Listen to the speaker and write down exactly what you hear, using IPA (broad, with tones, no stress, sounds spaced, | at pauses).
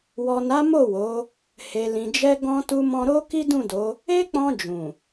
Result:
w ɔ˨ n a˨˦ m o˦˨ w o˨˦ | h e˨ l ĩ˨ d͡ʒ ɛ˧ ɡ ɔ̃˧ t u˧ m ɔ̃˧ ɾ o˦ k i˦ d ũ˦˨ d o˨˦ | e˦ k͡p ɔ̃˧ d͡ʒ ũ˨